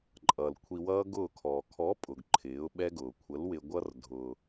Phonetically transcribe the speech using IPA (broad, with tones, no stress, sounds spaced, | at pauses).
ǃʼ ʌː˨ l kʷʰ i˧ w ʌː˦ ɡ ʊː˦˨ kʰ ɔ˨ kʰ ɔ˨˦ pʼ ʊ˨ ɡ ǃʰ ɪː˨˦ ʊ̯ ɓ ɛ˦ ɡ ʊː˨ kʷʰ ə˨˦ l w ɪ˧ ɡʷ ʌ˦ r dʱ ʊː˧